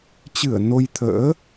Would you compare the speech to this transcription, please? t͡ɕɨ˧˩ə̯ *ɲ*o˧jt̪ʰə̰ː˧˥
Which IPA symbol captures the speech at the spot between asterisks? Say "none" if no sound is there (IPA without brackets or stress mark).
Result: n